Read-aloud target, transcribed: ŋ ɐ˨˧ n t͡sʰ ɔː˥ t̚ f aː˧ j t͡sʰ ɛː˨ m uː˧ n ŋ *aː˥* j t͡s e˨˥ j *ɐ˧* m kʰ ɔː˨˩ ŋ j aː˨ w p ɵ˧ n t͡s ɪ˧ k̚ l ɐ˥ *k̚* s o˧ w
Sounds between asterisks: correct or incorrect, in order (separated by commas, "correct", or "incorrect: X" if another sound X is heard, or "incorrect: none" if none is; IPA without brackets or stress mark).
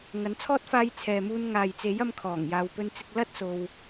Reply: incorrect: aː˨, correct, incorrect: t̚